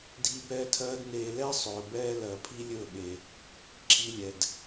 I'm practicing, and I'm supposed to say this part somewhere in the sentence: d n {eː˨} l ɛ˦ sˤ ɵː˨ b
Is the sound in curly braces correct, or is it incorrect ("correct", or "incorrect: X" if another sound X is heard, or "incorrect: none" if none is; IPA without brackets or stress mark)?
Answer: incorrect: eː˧